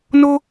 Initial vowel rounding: rounded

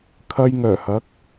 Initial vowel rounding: unrounded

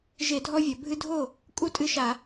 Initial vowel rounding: unrounded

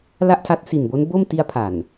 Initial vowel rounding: unrounded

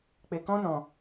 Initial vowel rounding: unrounded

